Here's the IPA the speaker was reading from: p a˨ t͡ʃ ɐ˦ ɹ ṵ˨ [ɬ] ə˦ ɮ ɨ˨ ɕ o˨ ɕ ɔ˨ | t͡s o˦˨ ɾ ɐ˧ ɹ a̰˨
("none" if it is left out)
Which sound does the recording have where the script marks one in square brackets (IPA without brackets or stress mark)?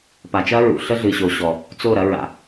ɬ